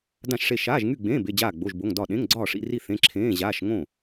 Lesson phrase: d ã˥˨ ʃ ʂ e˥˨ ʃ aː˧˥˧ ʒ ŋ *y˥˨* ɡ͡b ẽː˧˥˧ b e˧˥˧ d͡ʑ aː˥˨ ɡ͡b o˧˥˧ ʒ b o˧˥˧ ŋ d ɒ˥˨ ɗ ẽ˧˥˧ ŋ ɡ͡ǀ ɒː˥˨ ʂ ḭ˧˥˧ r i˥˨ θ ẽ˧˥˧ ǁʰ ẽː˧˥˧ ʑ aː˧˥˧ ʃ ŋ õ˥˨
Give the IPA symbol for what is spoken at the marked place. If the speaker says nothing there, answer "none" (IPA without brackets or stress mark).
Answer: y˥˨